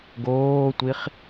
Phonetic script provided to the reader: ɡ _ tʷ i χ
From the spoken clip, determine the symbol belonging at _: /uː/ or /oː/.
oː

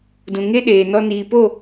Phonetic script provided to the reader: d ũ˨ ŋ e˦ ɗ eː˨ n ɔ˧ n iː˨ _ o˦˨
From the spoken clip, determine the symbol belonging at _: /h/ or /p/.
p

